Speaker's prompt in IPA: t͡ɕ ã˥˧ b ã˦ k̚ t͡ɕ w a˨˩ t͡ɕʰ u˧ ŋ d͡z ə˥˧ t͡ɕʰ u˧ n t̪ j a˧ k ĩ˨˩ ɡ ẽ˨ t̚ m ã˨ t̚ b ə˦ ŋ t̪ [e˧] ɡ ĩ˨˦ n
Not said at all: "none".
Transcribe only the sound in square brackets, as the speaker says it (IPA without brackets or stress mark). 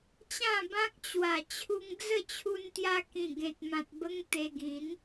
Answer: e˧